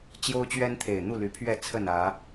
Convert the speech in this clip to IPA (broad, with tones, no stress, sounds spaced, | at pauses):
t͡ɕ j o˦ ʊ̯ t͡ɕ ɥ ɛ˦ n t̪ʰ e˨˩ ɪ̯ n̪ u˥˨ l y˨˦ pʰ ɥ ɛ˥˨ t͡sʰ ə˥˨ n ä˨˦